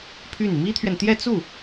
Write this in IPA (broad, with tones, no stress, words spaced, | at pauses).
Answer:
pʰy˥˩n mi˥t̪ʰɥɛ˨nt̪jɛ˥˧ t͡su˥˩